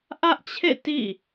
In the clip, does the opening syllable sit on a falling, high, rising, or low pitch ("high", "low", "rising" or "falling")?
high